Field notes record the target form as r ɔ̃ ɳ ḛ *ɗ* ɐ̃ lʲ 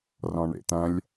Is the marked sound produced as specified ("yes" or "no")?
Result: no